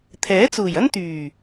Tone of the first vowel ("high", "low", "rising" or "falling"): rising